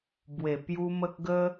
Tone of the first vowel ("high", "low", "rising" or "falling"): low